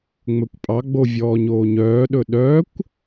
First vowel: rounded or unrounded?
rounded